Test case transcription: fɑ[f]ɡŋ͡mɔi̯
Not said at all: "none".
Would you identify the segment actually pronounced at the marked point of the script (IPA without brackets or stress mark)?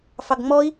none